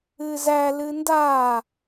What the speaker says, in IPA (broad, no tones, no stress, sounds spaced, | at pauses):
ɨ z æ l ɨ n d a